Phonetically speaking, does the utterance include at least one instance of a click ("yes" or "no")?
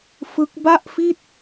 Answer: no